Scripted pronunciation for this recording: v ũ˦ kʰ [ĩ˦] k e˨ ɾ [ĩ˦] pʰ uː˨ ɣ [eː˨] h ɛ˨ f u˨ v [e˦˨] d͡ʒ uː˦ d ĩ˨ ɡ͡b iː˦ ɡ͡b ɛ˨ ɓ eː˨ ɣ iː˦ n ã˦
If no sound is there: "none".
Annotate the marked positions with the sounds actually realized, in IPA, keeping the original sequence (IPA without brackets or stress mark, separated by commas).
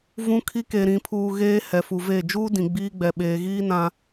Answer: i˦, ĩ˨, eː˦, e˦˨